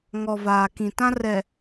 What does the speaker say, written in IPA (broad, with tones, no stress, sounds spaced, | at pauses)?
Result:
ŋ ɔ˨ v aː˨ k ĩ˨ t ã˦ r ɛ˨